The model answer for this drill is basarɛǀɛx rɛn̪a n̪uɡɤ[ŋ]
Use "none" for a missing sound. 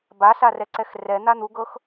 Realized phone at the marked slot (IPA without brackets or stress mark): x